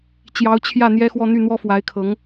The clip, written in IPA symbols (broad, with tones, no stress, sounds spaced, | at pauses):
t͡ɕ j ɑ˧˥ ʊ̯ t͡ɕʰ j ä˥˩ n̪ j ɛ˥ x w ɔ˥˧ n̪ y˥˩ n̪ w ɔ˥ f w a˧˥ ɪ̯ kʰ ɤ˧˥ ŋ